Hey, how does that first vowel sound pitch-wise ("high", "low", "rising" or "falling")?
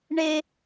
high